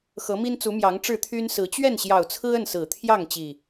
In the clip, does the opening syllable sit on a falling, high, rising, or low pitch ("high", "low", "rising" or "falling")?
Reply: rising